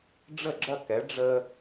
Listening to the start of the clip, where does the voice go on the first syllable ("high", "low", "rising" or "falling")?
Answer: falling